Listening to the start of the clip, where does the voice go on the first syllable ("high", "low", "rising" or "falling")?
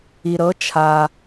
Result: low